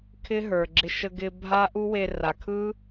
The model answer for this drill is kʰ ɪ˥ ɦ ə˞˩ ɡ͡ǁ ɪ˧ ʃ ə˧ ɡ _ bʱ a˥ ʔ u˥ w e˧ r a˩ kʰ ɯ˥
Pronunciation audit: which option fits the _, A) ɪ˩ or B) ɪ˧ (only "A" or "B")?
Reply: B